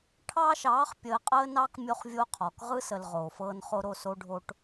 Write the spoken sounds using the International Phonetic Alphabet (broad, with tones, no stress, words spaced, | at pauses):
ʈʰɑː˦ʃɑː˨˦χ pʲəː˨qʼəː˦nɑ˦k mʲo˦χvʲo˦qʰɔ˨k ʁɯ˦sə˨l ʁoː˨fɤː˦nχo˦ ɾo˦˨so˦ɖʱo˦ʈ